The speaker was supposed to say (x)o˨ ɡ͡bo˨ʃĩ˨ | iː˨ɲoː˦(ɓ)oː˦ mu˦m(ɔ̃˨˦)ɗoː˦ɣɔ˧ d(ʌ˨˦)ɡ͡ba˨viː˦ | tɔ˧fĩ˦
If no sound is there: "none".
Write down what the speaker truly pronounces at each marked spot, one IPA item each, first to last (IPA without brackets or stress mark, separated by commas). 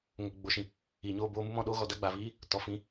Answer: ŋ, b, ɔ̃˧, a˨˦